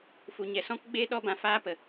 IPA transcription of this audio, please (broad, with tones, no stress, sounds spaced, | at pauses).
f u˨ ɲ ɛ˨ s ɔ̃˦ k ɡ͡b eː˦ ɗ ɔ˦ b ã˧ f aː˦ p ə˨